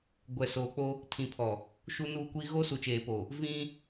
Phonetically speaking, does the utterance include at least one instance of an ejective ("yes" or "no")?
no